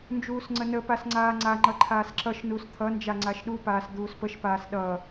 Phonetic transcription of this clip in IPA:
n d͡ʒ uː s ŋ͡ǀ ə n ə p a s ŋ͡ǀ aː ŋ͡ǀ a ŋ͡ǃ ʌ ǃʰ aː s ǁ ʌ ʃ n u s t̪ʰ ʌ n d͡ʒ a ŋ͡ǀ a ʃ ɗ u p aː s d̪ uː s p ə ʃ p aː s ɗ ʌ

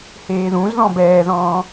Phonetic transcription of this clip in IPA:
h eː ð ũ z ð ɔ̃ b ɛː ð ɔ̃ː

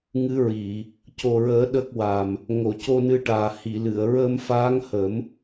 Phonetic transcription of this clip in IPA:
ŋ ɨ˧˥ ɹ i˨˩˨ | c o˨˩ ɹ əː˨˩˦ ɗ ə˦˥ k̚ w a˨˩ m | ŋ o˨˩˨ c o˧ n ɨ˧ ʈ aː˨˩ h i˨˩˨ l ɨ˨˩˨ ə̯ ɹ əː˧ m f aː˧˥ ŋ h ə˨˩˦ m

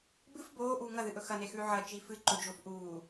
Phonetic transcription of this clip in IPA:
b ɨ f b oː ʔ uː ŋ ɐ ð ɨ ʔ ɵ x ɐ n e x ʉː ʕ ɐ t͡ʃ i f ɨ ǃ ɵ d͡ʒ o f ʔ uː

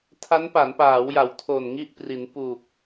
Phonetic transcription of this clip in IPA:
tʰ a˦˥ n p a˩˦ n p aː˩˦ w j a˩˦ w tʰ o˨˩ n ŋ i˥˩ ʔ p r i˩˦ n p u˨˩ k̚

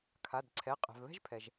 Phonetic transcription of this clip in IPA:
kʰ a˩˧˩ d ǀʰ ɛ˩˧˩ qʼ ɛ̤˩ v β ɛ̤˥ ʒ pʰ ɛ˩ ʒ

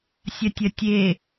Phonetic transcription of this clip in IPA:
sʲ ɐ tʲ ɐ tʲ e

